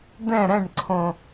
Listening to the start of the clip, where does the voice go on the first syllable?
falling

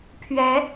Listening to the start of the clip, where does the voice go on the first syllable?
rising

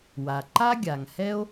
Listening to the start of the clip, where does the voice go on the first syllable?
low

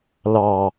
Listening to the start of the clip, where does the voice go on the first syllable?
low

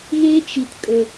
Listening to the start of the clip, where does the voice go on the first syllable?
high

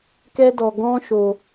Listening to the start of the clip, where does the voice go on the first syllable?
high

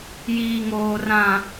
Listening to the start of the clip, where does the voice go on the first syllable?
low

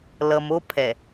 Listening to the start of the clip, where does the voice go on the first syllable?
low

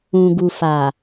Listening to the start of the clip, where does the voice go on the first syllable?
low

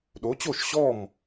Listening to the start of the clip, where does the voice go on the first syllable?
rising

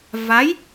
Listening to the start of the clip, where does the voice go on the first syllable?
rising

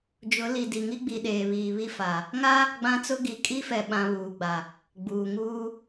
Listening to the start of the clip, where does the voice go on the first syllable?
rising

